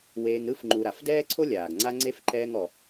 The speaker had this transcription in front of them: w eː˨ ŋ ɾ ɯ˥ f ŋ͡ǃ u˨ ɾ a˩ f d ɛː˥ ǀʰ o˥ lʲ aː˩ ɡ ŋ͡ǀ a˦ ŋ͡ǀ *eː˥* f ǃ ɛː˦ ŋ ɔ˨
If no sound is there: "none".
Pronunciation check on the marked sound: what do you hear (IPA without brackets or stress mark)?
e˥